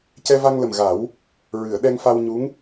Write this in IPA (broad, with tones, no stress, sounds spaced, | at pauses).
c ɛ˧ v a˧ ŋ l ə˨˩ m ɣ a˨˩˦ w | ɹ ɨ˨˩˨ ə̯ ɗ ɛ˧ ŋ f a˧ w ɲ u˧˥ ŋ